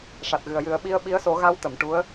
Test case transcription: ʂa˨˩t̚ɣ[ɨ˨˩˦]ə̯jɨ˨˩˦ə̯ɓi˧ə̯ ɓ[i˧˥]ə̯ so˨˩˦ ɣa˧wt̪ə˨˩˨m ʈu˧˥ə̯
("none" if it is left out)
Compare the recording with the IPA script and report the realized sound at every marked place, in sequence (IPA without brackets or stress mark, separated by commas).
ɨ˨˩, i˧˥